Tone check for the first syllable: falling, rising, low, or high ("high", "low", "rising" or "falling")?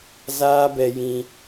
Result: high